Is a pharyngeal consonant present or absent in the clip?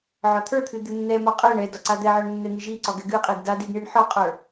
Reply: present